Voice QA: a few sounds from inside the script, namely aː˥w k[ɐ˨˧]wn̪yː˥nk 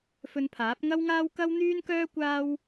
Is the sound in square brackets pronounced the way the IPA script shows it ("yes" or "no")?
no